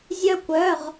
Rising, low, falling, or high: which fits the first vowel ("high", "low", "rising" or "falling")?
high